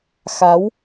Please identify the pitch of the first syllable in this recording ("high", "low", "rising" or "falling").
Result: rising